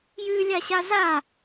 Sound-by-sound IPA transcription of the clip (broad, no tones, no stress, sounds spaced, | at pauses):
j ʉː lʲ a ɕ a z a